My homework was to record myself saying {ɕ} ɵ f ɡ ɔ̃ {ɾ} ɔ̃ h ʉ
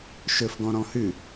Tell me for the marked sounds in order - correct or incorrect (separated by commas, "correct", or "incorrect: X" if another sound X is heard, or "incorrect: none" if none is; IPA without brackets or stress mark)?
incorrect: ʃ, correct